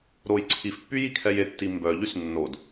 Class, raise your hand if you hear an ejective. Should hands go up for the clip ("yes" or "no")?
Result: no